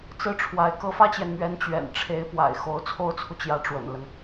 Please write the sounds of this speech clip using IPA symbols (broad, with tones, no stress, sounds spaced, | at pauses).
t͡s ɹ̩˥˩ ʈ͡ʂʰ w a˧˥ ɪ̯ k ɤ˧˥ f ä˥ t͡ɕ j ɛ˨ n m ɥ ɛ˧˥ n t͡ɕ ɥ ɛ̰˨˩ n ʈ͡ʂʰ e˧˥ ɪ̯ p w a̰˨˩ ɪ̯ x o˧˥ ʊ̯ t͡sʰ o˥ ʊ̯ t͡sʰ u˨ t͡ɕ j ä˧˥ ʈ͡ʂ w ə̰˨˩ n l ə˦ n